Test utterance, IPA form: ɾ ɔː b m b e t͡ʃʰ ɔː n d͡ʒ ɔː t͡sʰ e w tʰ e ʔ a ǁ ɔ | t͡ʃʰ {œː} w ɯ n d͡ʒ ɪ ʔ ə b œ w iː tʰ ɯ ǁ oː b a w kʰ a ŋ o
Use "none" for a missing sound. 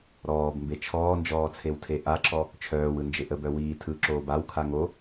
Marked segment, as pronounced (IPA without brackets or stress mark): œː